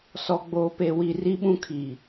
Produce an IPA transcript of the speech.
s ɔ˨ ɡ͡b oː˨ p e˨ w i˨ r i˦ ɓ ũ˦ kʰ i˨

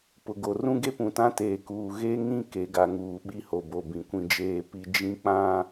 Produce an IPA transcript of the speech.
p ʊ˨ ɡ o˨ r ũ˦ ɡ e˦ p ũ˨ t ã˦ t eː˨ k uː˨ ɣ e˦ ŋ ĩ˦ k e˨˦ ɡ a˨ ŋ uː˨ ɓ i˦ h o˨ b o˨ b ĩ˨ kʷ ĩ˦ d͡ʒ eː˦ p i˦ d͡ʒ ĩ˦ k͡p ã˦˨

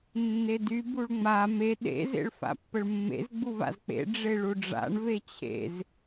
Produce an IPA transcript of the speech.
nː e d y b u ɭ ŋ͡m a m e ɗ ḛ z ḛ ɭ f a̰ pː ə ɭ mː ḛ z ɡ͡b u v a̰ z k͡p ḛ ɖ͡ʐ e ɭ u ɖ͡ʐ a̰ ɳ v e t͡ɕʰ ḛ z

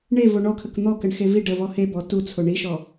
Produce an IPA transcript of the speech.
ɳ e v o ɳ ɔ kʰ ə k n̪ ɔ k ə ɳ x e v i ɖ ə v ɔ h e b ɔ t u t͡sʰ o ɳ i ʃ ɔ

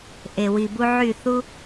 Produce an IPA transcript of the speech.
ʔ e˨ w i˨ b u˧ ʕ y˦˨ θ u˧

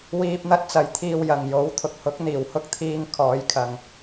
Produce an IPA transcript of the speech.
w iː˧ p̚ n̪ ɐ˥ t̚ t͡s ɐ˨ j t̪ʰ iː˨ w j ɐ˨˩ ŋ j o˨˥ w t̪ʰ ʊ˨ k̚ h ʊ˨˥ k̚ n̪ iː˨˩ w h ʊ˥ k̚ t̪ʰ iː˧ ŋ kʰ ɔː˨˧ j kʰ ɐ˨ ŋ

